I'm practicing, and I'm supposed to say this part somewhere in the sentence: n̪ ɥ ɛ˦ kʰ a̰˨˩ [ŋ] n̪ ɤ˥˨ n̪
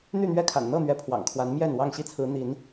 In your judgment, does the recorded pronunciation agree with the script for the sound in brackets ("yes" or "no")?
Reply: no